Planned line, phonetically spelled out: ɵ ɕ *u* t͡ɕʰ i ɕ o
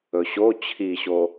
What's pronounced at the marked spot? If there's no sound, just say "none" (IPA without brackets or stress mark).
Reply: o